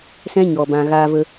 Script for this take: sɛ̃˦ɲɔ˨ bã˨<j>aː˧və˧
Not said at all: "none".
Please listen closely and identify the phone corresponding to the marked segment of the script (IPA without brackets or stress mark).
ɣ